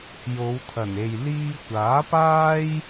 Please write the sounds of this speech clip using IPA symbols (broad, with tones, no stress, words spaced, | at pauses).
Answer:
jo˨˧wt̪ʰɐ˨˩ne˨j liː˧kʷaː˨˥paː˥j